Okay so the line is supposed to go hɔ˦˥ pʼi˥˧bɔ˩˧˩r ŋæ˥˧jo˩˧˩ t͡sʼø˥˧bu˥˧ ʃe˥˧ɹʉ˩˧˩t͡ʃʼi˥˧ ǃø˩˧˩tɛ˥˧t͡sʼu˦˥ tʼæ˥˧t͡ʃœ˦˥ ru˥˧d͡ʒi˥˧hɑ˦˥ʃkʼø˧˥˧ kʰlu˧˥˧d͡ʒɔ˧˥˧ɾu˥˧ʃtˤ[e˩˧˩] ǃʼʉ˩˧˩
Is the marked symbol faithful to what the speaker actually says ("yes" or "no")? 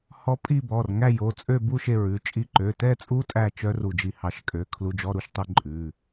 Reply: no